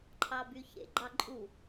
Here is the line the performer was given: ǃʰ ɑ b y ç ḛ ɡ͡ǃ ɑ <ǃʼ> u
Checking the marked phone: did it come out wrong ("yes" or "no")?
no